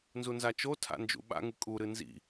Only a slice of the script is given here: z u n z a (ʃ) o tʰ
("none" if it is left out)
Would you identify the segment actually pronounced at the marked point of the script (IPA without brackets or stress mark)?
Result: t͡ʃ